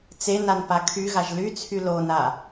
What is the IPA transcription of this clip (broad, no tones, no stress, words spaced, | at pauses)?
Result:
t͡senan pakʰyɣaʒ lyt͡sʰy lona